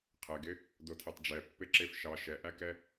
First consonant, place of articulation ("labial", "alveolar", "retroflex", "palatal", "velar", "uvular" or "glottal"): uvular